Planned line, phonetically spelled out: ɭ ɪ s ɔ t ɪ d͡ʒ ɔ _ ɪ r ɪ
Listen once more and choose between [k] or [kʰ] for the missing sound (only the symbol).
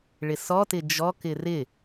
k